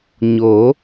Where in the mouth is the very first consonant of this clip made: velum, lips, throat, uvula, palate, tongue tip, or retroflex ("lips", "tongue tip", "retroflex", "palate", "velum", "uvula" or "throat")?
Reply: palate